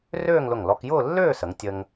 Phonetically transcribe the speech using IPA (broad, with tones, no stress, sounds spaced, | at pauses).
r øː˥˧ ŋ l ʊ˧˩ ŋ l ɔ˧ k j ʊː˥˧ lː øː˥˧ s ə˩˧ ŋ tʲ ə˧ ŋ